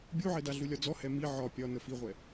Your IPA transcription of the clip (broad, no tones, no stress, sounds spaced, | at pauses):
bʲ u ʕ ɛ d a ɮ u lʲ ɒ d͡z ɔ h ɛ m i ʕ ɒ pʲ ɒ n ə f i ʁʷ ɛ